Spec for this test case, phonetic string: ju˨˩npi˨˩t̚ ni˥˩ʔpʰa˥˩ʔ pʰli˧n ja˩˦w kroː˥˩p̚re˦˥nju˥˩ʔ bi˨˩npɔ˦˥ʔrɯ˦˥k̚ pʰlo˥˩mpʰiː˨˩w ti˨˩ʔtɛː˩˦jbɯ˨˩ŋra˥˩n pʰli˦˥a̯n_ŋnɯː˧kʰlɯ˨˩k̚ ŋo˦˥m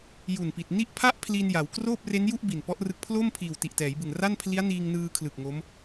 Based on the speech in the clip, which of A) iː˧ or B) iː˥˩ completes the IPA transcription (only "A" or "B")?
A